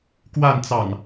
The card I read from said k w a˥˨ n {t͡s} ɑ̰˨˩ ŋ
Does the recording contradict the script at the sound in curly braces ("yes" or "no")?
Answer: no